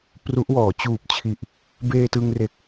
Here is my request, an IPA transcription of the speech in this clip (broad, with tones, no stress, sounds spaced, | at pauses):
p r u˦˥ ʔ w ɔː˩˦ t͡ɕ uː˨˩ p̚ t͡ɕʰ i˨˩ ʔ | b eː˧ t ɯ˧ ŋ r e˨˩ k̚